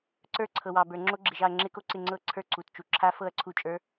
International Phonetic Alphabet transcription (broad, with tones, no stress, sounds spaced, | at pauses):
ǀ ə˞˦˥ ǀʰ ɤ˨ w ɑ˨ b ə˞˨ ŋ͡ǁ o˦˥ ɡ͡ǁ ɪ˨ ʒ ɑ˥˨ ɐ̯ ŋ͡ǁ ɪ˦˥ k o˥˨ ǀ ɪ˥˨ ŋ͡ǀ ɤ˥˨ ǀʰ ə˞˥˨ ǀ u˨ t t͡ʃ u˨ ǁʰ a˦˥ f ɤ˥˨ ɐ̯ ǀʰ u˥˨ t͡ʃʼ ə˞˦˥